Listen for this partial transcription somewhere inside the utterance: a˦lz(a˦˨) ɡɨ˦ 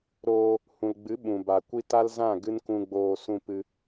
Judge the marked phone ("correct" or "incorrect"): incorrect